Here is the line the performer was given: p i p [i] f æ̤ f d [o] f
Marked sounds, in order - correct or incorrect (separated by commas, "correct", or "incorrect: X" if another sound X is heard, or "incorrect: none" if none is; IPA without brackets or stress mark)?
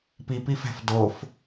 correct, correct